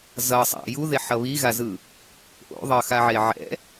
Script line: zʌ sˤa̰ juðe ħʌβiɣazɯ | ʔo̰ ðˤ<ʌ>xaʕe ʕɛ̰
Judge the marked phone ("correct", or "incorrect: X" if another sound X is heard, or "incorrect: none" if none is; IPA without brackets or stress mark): correct